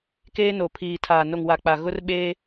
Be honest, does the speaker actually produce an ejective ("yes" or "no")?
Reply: no